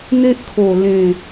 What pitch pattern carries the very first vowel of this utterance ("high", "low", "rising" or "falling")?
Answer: high